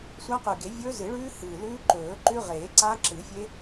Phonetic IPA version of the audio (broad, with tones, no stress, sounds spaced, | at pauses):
sʷ a˦˥ q ʉ˨˩ ɡ e˨˩˦ vʲ ɵː˦˥ z ɨ˨˩˦ ɭ ʉː˦˥ h ɨː˨˩ l ʉː˦˥ ǃ ɵː˨˩˦ ǃ ʉ˦˥ ʁ eː˨˩˦ ǀ a˦˥ ǁ ɨ˨˩˦ fʲ e˦˥